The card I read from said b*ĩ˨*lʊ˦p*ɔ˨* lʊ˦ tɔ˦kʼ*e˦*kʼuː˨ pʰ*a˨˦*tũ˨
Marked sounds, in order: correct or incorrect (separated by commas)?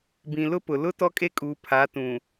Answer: correct, incorrect, correct, correct